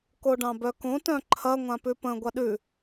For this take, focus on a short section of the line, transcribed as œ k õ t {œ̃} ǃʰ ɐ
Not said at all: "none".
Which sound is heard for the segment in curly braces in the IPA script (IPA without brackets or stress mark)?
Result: œ̃